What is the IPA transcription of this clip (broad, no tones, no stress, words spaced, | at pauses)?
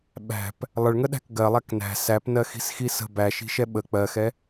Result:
ɓæ̤p | lˠəɭŋəɗæ̤k ɡɜlˠæk næ̤ sæpnɜxi̤sxi sə̤ bæʃi̤ʃɛ ɓə k͡pɜxɛ